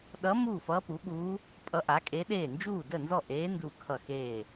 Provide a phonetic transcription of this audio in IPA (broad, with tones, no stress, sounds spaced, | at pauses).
ɗ ʌ˧˥ m uː˥˩ f ʌː˧˥ p u˩˥ ɠ uː˧˥ | pʼ ʌ˧˥ ʔ a˩˥ kʼ e˧˥ ɗ eː˥˩ n d͡ʒ uː˥˩ d ə˥˩ n z ɔ˥˩ ʔ eː˧˥ n d u˥˩ kʰ ʌ˥˩ x eː˥˩